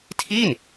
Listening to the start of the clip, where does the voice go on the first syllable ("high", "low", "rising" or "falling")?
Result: falling